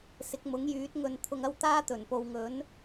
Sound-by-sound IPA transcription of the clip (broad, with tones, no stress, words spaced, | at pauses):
sɪ˨˥k̚mʊ˨˥ŋjyː˨˥t̚ ŋɵ˨nt̪ʰʊ˨ŋ ɐ˥wt̪aː˥t̪ɵ˨˩n po˨wŋɵ˨˥n